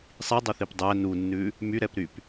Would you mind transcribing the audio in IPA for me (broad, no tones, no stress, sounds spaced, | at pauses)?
sˤ i dˤ o θ i p dˤ æ n u nː ʉ | m y ɾ ɛ p ɾ y p